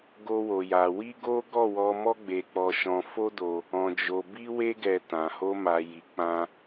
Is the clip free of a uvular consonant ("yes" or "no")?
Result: yes